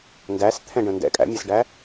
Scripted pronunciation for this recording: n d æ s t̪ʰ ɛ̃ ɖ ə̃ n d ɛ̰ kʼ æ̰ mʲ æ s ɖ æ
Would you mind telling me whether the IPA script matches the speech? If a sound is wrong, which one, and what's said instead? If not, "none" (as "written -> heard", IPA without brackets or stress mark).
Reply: none